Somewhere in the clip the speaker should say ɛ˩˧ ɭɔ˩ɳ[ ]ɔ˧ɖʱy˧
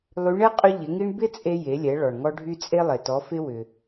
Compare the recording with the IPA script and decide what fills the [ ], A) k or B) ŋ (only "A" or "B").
B